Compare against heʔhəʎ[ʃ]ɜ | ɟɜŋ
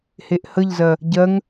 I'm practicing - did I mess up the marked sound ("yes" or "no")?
yes